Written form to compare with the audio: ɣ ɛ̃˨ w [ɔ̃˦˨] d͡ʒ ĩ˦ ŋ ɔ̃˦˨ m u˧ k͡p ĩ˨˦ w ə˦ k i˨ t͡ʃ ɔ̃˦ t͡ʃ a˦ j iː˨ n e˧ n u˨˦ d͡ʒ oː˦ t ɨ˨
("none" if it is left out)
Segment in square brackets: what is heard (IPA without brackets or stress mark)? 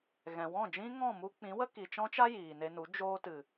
ɔ̃˦˨